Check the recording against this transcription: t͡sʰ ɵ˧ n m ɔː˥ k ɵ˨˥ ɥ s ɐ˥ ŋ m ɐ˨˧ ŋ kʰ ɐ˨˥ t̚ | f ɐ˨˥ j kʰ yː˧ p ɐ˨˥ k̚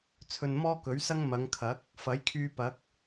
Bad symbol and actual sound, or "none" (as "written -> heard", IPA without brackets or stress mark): t̚ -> k̚